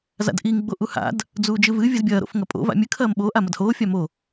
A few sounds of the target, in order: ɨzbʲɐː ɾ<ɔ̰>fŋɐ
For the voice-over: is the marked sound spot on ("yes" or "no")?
no